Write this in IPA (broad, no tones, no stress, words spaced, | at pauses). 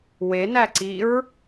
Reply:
wenæǀiɹ